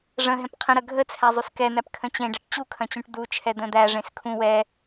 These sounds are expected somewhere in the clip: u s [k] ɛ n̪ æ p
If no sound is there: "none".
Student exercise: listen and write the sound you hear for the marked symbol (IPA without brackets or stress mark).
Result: k